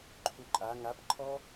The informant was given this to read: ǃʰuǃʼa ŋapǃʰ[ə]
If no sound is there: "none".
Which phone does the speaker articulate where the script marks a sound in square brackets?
ɔ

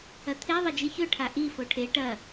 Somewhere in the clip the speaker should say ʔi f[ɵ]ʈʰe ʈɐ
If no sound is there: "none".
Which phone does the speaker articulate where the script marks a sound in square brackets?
o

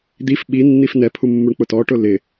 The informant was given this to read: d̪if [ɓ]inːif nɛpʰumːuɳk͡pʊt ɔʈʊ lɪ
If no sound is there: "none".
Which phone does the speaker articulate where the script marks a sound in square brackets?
ɓ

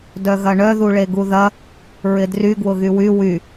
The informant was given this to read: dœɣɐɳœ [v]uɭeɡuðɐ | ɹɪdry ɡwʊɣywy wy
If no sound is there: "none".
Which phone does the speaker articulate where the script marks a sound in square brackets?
ð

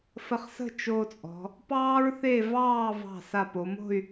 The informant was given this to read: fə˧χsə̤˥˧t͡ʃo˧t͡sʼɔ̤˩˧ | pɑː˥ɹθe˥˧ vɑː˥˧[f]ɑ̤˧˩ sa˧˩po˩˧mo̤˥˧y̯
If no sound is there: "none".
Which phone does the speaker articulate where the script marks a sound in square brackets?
v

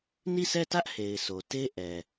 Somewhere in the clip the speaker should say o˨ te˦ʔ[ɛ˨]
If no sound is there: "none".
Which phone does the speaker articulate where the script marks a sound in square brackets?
ɛ˨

